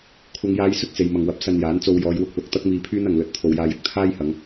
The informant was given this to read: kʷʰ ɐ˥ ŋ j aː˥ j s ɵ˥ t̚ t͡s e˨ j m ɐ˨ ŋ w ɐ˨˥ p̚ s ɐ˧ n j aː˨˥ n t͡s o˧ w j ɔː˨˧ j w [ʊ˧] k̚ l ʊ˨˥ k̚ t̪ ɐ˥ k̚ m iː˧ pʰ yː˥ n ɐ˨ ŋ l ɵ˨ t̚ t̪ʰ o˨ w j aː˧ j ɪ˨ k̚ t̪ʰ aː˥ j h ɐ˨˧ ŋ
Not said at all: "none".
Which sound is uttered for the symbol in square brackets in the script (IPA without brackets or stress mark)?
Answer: ʊ˧